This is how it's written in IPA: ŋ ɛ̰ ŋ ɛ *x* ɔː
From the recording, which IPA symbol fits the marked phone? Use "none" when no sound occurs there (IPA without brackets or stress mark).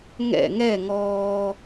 ŋ